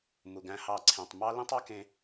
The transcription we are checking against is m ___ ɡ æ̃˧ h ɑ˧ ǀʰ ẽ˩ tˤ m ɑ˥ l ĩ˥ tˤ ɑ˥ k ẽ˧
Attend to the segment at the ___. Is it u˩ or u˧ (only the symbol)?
u˩